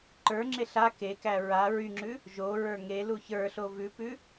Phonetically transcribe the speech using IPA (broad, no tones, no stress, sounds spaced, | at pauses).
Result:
ǃ ə˞ ŋ͡ǁ e ɬ a k e k æ ɹ a ɹ y ŋ͡ǁ ʉ | ʒ o ɹ ə˞ ŋ e l u ç ə˞ ɬ o v ʉ p ʉ